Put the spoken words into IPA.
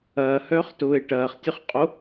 ɐːhœːχtʊːe̯ ʈɐːχtʲœχqʼo

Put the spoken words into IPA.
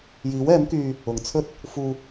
jiː˨˥wɛː˨˥mkyː˧ | ʊ˨ŋt͡sʰɵ˥t̚ | fuː˧

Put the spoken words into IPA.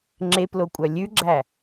ŋ͡ǁeplokʷʼœ lʲʉɡ͡ǁæ

